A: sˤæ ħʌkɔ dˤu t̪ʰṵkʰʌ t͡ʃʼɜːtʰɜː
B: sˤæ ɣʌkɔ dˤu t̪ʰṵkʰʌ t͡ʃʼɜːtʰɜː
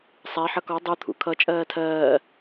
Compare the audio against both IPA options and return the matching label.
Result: A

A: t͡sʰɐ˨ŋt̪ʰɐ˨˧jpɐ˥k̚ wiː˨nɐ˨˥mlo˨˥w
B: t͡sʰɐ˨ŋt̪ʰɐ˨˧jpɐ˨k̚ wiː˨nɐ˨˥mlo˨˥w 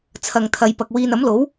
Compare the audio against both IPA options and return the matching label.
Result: B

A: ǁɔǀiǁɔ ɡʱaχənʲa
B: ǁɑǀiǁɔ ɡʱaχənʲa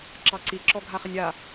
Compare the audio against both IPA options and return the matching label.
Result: B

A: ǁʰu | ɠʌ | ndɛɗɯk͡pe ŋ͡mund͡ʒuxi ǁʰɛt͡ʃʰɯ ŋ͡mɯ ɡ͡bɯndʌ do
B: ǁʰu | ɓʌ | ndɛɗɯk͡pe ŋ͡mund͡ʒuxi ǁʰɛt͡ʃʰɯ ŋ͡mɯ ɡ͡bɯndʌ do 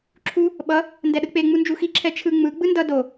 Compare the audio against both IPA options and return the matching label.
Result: B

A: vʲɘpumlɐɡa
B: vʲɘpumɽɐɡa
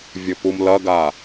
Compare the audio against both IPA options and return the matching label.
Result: A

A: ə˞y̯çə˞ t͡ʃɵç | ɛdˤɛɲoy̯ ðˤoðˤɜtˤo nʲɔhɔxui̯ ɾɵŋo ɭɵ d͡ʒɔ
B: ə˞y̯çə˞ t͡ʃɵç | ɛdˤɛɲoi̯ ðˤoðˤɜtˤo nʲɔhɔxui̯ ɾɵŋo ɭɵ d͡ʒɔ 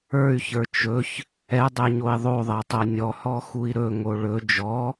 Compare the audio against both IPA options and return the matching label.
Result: B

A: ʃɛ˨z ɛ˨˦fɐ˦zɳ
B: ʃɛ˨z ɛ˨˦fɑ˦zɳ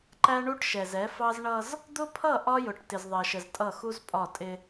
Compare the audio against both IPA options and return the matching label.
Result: B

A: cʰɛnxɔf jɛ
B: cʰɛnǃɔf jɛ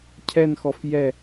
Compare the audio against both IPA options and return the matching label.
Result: A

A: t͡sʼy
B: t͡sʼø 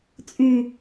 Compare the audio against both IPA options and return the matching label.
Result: A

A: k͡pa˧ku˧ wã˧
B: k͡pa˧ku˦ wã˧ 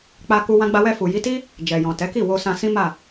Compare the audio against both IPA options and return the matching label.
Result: A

